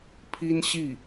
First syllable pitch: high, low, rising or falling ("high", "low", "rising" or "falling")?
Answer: high